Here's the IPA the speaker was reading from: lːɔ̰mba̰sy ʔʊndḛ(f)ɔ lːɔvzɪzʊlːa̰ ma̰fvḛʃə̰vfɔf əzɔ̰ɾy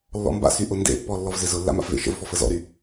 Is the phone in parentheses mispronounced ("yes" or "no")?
yes